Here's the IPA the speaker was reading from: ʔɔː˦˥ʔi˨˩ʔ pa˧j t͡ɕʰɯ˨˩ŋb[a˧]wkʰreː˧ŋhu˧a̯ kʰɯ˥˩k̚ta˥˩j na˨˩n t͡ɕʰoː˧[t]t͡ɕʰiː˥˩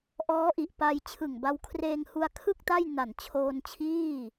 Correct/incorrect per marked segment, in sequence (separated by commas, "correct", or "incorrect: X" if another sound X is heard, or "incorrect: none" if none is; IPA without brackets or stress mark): correct, incorrect: n